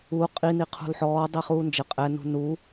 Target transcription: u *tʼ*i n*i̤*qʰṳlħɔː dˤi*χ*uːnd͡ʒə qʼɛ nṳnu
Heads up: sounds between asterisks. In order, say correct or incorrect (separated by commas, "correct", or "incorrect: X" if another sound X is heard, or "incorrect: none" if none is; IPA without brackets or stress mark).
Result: incorrect: qʼ, incorrect: i, correct